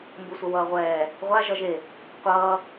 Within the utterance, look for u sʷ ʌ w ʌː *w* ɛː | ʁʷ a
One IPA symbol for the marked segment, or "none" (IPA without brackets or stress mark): ʁʷ